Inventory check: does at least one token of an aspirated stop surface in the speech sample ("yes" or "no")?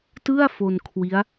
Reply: yes